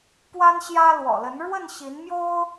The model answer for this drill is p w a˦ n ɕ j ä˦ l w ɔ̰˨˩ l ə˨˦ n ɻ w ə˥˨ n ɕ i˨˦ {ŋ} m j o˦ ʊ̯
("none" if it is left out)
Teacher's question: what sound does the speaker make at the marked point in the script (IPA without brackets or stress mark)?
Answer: n